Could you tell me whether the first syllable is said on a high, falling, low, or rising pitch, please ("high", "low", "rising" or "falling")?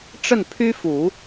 falling